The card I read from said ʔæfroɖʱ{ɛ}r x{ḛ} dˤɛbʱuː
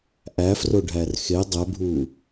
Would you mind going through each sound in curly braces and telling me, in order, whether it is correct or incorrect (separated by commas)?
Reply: incorrect, incorrect